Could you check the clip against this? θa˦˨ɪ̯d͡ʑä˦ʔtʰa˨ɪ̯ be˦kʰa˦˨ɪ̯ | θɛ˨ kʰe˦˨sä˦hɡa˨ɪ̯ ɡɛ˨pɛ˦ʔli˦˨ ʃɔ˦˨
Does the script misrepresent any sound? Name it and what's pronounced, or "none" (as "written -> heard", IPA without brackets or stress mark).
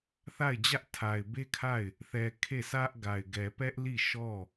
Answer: h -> ʔ